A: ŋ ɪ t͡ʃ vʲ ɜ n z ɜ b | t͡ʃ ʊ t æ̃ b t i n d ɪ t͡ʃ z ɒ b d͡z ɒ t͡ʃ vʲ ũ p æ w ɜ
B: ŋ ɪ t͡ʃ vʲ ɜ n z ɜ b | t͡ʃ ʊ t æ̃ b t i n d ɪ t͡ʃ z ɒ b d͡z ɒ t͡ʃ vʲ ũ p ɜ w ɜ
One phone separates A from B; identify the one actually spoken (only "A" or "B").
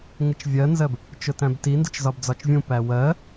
A